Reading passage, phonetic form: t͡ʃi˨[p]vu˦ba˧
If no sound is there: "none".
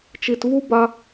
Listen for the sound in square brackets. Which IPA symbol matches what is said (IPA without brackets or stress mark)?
t